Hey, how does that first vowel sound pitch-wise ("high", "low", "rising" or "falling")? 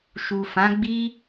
low